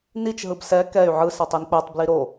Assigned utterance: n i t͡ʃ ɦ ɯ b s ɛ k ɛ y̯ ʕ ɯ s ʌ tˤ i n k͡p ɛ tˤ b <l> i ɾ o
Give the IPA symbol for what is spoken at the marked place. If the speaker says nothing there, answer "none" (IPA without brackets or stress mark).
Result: l